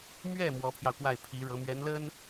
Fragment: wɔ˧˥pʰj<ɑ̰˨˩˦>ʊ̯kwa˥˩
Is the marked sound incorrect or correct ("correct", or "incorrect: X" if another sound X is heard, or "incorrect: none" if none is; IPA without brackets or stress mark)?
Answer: incorrect: ɑ˧